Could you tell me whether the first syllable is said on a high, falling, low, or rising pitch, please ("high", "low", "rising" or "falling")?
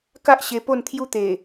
high